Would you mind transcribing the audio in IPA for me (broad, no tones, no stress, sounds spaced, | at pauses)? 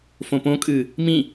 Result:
f õ p õ kʼ ɨː | m ĩ